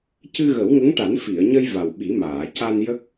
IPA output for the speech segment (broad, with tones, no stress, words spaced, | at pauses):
cɨ˧ɣə˨˩˦wŋə˧˥ŋʈa˨˩˦n fi˨˩˨ə̯ɲə˧j va˨˩wɓi˨˩˦maː˨˩˨ ca˧njə˦˥k̚